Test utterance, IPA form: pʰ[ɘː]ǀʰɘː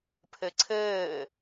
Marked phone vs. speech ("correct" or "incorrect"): incorrect